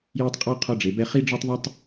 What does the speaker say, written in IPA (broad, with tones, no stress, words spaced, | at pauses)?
jɘ˦tˤqʼɔ˦ qʰɔ˦ɖ͡ʐe˩˧bɛ˦ χi˦ɖ͡ʐɔ˦tˤðˤɛ˦tˤ